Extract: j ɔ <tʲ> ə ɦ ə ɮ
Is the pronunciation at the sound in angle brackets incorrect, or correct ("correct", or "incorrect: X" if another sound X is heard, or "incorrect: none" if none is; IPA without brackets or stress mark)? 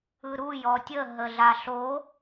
correct